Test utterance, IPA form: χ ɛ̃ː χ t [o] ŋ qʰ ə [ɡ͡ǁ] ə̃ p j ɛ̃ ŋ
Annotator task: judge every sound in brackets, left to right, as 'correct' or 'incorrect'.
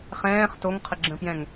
correct, correct

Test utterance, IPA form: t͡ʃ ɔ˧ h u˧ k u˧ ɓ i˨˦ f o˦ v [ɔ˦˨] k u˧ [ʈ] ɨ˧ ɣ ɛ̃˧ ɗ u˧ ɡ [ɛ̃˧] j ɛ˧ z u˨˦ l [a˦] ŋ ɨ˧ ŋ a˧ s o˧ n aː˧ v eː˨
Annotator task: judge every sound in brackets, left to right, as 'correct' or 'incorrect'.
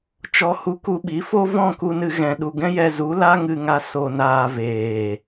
incorrect, incorrect, incorrect, correct

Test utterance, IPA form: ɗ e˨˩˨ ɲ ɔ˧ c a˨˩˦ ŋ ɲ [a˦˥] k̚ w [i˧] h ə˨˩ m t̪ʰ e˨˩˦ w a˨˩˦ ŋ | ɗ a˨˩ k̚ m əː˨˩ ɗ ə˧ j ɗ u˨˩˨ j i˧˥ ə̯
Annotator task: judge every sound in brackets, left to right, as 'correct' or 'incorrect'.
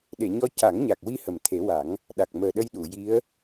incorrect, correct

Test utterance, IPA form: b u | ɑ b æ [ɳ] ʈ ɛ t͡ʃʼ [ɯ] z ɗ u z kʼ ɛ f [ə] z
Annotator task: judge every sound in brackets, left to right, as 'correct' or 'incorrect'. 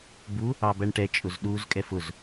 correct, incorrect, incorrect

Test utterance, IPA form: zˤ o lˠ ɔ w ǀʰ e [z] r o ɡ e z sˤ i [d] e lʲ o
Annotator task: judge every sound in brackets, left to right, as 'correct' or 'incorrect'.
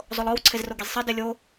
correct, correct

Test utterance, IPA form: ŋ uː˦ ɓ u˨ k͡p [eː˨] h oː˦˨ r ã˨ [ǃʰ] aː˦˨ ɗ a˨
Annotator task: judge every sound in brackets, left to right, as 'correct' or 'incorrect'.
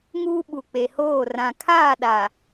incorrect, incorrect

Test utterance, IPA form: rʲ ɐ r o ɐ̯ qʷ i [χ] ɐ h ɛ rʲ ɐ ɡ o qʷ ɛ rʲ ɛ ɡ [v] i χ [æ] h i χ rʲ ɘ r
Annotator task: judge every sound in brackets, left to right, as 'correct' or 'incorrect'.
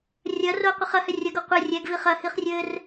correct, correct, incorrect

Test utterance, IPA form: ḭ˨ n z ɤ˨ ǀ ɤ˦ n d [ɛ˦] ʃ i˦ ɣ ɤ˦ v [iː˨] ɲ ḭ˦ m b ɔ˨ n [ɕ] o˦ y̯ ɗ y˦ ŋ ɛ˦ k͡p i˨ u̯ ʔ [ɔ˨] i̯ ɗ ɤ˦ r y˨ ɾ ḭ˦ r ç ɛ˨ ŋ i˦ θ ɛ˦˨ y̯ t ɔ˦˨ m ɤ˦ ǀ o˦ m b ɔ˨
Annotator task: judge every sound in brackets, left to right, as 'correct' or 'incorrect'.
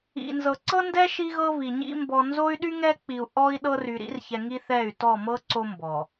correct, incorrect, incorrect, incorrect

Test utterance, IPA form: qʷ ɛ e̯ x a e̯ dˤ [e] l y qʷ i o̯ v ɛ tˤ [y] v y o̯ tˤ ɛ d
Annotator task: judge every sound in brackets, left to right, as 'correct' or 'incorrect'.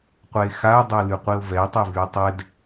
incorrect, incorrect

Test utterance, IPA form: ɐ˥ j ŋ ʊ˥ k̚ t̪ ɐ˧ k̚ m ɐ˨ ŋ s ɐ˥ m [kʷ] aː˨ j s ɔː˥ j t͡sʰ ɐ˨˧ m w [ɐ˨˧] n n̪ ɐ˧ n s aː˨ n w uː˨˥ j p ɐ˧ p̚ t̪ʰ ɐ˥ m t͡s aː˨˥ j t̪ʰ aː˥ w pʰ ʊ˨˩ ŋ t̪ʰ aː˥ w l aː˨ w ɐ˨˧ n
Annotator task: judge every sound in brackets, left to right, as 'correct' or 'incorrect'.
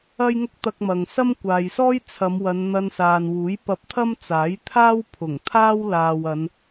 correct, correct

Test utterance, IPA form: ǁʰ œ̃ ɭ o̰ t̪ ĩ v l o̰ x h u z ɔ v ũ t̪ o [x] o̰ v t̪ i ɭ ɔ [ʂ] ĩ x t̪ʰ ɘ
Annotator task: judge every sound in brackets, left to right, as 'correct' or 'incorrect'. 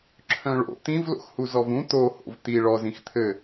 incorrect, incorrect

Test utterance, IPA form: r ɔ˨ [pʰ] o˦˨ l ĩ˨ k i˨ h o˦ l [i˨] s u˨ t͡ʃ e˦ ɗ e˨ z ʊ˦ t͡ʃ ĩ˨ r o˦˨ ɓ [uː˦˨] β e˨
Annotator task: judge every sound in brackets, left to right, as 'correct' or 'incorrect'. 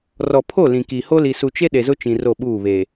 correct, correct, correct

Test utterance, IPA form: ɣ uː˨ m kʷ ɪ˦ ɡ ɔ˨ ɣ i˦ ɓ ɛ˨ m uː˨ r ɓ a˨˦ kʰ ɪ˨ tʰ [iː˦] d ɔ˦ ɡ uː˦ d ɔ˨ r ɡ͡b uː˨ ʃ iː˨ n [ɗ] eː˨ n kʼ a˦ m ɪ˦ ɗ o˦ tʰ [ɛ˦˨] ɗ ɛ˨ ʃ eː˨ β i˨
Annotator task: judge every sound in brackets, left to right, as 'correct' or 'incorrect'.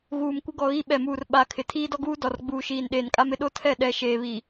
correct, correct, correct

